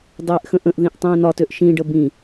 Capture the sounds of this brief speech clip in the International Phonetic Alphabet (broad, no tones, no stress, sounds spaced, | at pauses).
dˤ eː ʔ x ə̃ ʔ ə̃ ʔ ð ĩ ʔ tˤ ĩː n ɒ t ø ʔ ʃ ĩ ɖ ə b ĩ